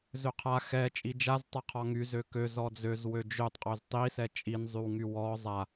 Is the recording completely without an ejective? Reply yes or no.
no